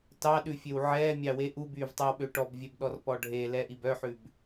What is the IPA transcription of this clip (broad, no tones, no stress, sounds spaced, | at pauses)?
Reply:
t ɑ ɗ ʉ fʲ ø w ʕ ɛː mʲ ɑ w e ʔ u b yː v tˤ ɛ w ɓ ø ʈ ɔ b vʲ ɛ b ɗ ɔ r p ɔ ɖʱ e l ɛ ʔ i b œ ħ ʉ b